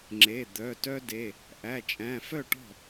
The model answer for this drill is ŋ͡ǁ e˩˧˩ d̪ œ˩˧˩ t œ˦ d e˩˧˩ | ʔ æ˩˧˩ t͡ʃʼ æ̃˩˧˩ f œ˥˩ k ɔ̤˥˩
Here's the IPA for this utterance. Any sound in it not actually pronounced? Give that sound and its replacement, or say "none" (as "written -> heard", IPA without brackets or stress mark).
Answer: k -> ʈ